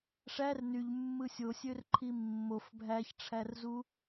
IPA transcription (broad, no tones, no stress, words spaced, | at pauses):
ʂær nyʎmːɯ sʲosʲørǃʰi mːof bʱæçʈ͡ʂʰærzu